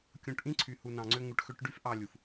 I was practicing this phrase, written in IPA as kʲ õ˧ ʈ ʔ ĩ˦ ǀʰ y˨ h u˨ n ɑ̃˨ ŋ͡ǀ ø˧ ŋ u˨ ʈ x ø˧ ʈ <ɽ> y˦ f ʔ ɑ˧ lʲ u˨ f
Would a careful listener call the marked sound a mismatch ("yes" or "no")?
yes